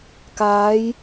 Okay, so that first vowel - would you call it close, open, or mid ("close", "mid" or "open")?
open